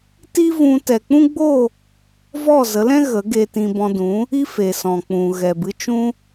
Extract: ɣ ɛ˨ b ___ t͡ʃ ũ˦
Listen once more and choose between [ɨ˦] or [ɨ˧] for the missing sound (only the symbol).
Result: ɨ˧